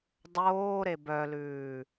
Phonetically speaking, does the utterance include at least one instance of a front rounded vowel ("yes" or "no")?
yes